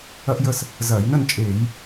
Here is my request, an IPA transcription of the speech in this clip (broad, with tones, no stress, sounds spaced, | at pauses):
ɐ˥ ʔ j ə˥˧ s | z ɐː˧˩˧ j n ə˥˧ n t͡ʃʼ eː˧˩˧ j